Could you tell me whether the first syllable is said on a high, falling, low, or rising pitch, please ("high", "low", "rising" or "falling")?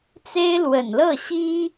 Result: high